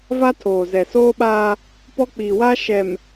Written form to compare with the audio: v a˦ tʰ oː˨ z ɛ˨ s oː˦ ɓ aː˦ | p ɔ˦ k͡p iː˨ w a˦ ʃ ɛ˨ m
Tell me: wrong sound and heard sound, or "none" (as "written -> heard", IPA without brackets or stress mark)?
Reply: none